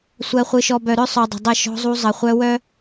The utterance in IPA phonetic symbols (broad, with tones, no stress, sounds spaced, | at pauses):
sʷ ɜ˨ χʷ ɯ˨ ʃ ɔ˨ b œ˨ ɾ œ˦ sˤ œ˨ dˤ ə̤˨ dˤ ə˦˨ ʃ ɔ̤˦ zˤ u˦ zˤ ə˨ χʷ œ˦ w œ˦